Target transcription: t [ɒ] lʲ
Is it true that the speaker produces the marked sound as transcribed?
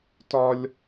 yes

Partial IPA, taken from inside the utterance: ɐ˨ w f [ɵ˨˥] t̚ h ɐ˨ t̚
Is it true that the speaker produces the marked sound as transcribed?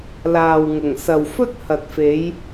no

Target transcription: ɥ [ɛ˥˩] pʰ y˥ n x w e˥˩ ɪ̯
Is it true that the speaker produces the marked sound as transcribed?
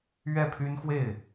yes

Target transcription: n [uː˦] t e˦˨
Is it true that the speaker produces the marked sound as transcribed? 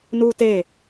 yes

